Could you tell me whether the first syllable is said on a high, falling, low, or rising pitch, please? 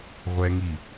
high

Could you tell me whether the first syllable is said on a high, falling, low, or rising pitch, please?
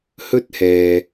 high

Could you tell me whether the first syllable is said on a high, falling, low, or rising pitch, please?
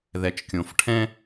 low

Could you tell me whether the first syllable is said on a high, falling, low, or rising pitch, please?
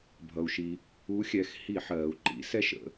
low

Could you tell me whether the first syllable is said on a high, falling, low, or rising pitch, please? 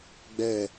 falling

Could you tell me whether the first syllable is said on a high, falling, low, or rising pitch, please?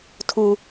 high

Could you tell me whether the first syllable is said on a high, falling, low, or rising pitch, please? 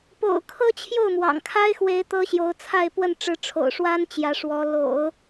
low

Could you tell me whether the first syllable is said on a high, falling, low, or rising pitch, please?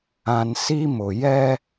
low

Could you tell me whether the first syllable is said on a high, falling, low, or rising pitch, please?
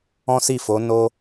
high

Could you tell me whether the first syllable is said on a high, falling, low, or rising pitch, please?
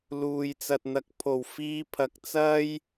low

